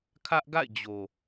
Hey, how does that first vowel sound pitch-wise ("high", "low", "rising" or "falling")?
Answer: high